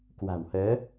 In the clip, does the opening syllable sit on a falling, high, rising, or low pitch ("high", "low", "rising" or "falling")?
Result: low